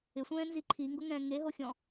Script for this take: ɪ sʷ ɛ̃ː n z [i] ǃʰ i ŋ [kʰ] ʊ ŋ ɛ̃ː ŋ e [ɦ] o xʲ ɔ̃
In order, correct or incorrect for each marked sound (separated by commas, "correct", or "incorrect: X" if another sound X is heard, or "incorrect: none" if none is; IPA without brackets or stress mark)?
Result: correct, incorrect: ɡ, correct